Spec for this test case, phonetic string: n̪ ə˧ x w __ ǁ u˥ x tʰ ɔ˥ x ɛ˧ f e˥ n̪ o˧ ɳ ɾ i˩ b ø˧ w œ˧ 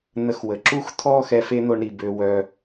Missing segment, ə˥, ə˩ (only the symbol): ə˩